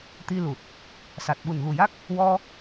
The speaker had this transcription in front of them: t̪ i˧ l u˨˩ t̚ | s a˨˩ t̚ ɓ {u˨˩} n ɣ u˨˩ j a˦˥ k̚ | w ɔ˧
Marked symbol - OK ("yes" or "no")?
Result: yes